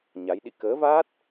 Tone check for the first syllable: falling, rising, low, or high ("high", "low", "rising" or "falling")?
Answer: rising